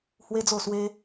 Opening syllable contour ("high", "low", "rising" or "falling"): high